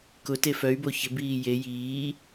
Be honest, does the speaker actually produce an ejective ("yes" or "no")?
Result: no